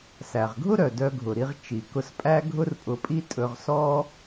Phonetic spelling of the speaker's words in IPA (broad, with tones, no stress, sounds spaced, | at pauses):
s æ˩ ʁ ɡʱ ʊ˥ ɾ œ˩ d œ˧ ɡʱ ʊ˩ ɾ i˧ ʁ t͡ʃ i˩ k ʊ˧ s pʼ æ˥ ɡʱ ʊ˥ r pʼ ʊ˧ pʼ i˥ tʼ ɵ˧ ʁ s ɔ˥